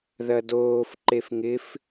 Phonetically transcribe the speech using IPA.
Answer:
ðɐdoːf ǃefŋɪf

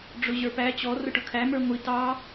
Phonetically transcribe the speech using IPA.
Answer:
ɖ͡ʐʊʑə˞pæ t͡ɕɔ rʊʈʊkʰæ mə˞ŋʷi tɑ

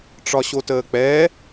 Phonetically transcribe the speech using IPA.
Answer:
ʈ͡ʂɒɕotəːk͡pɛ

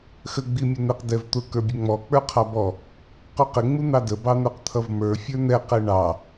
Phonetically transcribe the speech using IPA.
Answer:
xə ɡ͡bimʲʊn̪ɪq dɛvt̪ʊ kə˞bʲʊŋ͡mɔ k͡pə˞qʰɑbɔ | quqɪ ŋ͡mun̪ɑdə bɑn̪ə˞qt̪ʰʌvmə˞ fʲə˞n̪ɛ qɛɳɑ

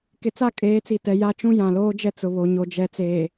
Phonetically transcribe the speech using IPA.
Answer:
kɪ˨t͡sa˦˨ kʼeː˨˦t͡si˨tɛ˨ ja˦t͡ʃũ˦ jã˨loː˦d͡ʒɛ˦ t͡sʊ˨βo˨ɲo˨ d͡ʒɛ˨t͡seː˨

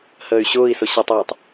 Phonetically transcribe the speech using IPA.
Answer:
həːy̯ɕʊːi̯sʊ ɕʌtˤjɑtˤ

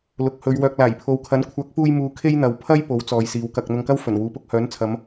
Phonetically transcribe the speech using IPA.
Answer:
lʊ˨k̚hɵ˨˧ɥ wœː˨k̚laː˨˩jpʰo˨wkʰɐ˨˥n kʷʰɐ˨˥k̚fuː˧jmuː˨ kʰe˥jn̪ɐ˨˧w pʰɐ˥j po˨˥wt͡sɔː˨jsiː˨˧wkɐ˧k̚ n̪ʊ˧ŋkɐ˥wfɵ˨˩nwuː˨˧ pʊ˧k̚ hœː˨˥nt͡sʰɐ˨˧m

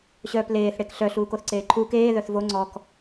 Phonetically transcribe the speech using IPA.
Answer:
ɕœːpleːθ ɽekɬœ ɬuːkoθǀeːǃʰuːk eː ðœθvo ŋ͡ǀɔk

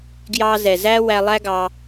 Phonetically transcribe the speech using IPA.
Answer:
ɡjɑ˧zɛ˨ zæ˦wæ˧ lˠæ˦ɡɑ˧

